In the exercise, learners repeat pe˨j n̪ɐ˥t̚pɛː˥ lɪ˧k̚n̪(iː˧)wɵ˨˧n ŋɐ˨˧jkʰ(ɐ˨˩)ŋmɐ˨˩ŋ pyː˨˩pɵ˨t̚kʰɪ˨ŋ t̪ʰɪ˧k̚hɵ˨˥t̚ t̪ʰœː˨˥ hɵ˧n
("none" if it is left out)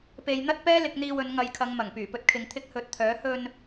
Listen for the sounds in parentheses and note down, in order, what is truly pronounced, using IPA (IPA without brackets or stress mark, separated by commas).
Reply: iː˧, ɐ˨˧